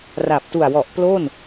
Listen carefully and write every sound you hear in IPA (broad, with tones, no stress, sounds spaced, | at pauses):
r a˨˩ p̚ t u˨˩ a̯ w ɔ˨˩ ʔ p l o˥˩ n